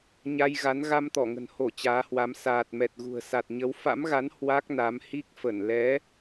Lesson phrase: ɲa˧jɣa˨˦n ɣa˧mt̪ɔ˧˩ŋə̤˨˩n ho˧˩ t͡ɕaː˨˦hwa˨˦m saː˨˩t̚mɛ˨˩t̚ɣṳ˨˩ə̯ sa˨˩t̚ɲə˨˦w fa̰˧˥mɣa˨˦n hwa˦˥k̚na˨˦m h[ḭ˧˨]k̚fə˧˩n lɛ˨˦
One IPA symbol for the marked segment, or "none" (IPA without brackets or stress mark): i˦˥